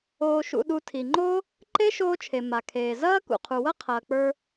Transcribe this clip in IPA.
oː˧ ʃ ṵ˧ ɗ u˧ tʰ i˩ ŋ͡ǃ o˥ | ǃ e˥ ʃ oː˥ t͡ʃʰ e˩ m a˩ kʰ eː˩ z ɐː˥ k ṵ˩ qʰ u˩ w ɐ˥ qʰ ɐː˩ k͡p ə˞˧

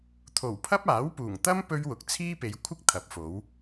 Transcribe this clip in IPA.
t̪ʰ o˨˩ w pʰ ɐ˥ p̚ aː˨˥ w p uː˨˩ ŋ t̪ ɐ˥ m p ɵ˥ ɥ w ʊ˨ k̚ t͡sʰ iː˥ p e˨˧ j kʷʰ ɪ˥ k̚ t̪ʰ ɐ˨˥ p̚ f o˨˥ w

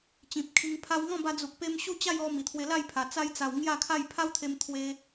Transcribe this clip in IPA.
t͡ɕ ĩ˨ p̚ kʰ i˧ ŋ pʰ a˧ w ŋ ɔ̃˥˧ b a˧ d͡z u˨ k̚ p e˧ m ɕ u˥˧ t͡ɕ a˥˧ j ɔ˧ m i˨˩ t̪ʰ w e˧ l a˥˧ j pʰ a˨˩ t͡s a˧ j t͡s a˨˩ w ŋ j a˥˧ kʰ a˥˧ j pʰ a˦ w t̪ʰ e˧ m t̪ʰ w e˧

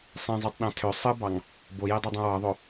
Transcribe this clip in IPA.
sˤ ĩ zˤ u tˤ ɗ ɑ̃ tʰ ø sˤ ɯ b ɑ ŋ | b o j e dˤ i dˤ ũ w ɑ ðˤ o

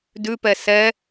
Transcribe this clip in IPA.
d ʉ p ɛ s ɛ

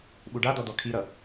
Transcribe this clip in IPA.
ɓ u ɖ a d̪ ɔ d̪ ɔ kʰ i ɾ ʌ

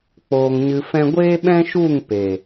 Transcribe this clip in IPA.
k͡p oː˧ ŋ ɲ ɨ˧ f ɛ̃˦ ɡʷ eː˦ ɓ ɛ̃˦ ʃ u˦˨ ŋ p e˨

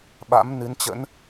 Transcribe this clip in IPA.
ɓ a̰˧˥ m n ɨ˨˦ n t͡ɕ ə̰˧˥ n

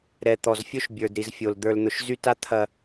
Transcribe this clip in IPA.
ɾ ɛ˨ t̪ ɔ˨ z fʲ o˦ ʃ bʲ ə˞˨ d ɾ i˨ z fʲ o˨ l d̪ ə˞˨ l n̪ ʊ˨ ʃ z y˦ t a˦ t̪ʰ ɐ˨

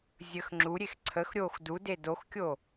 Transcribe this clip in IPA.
zʲ ə x ŋ͡ǁ u ɾʲ e x ǀʰ ə x ɾʲ o x d u d e d o x kʲ o

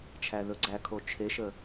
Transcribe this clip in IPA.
t͡ʃʰ æ ð ɵ ɡ͡ǀ æ kʰ o t͡ʃʰ e ʃ ə

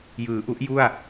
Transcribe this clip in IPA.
j ɯː˩˦ ʔ u˦˥ ʔ j u˥˩ a̯

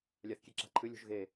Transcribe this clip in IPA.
lʲ a θ kʲ e ǁ a̤ ǃʰ ɨ lʲ o̤ ʒ ɣ e

